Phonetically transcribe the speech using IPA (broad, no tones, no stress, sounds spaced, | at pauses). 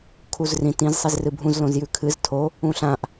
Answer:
kʰ u z r ĩ t ĩ z sˤ i z r ɨ bʱ ũ z l õ z j ʉ kʰ ɨ z tʰ o | ũ ɬ ã ʔ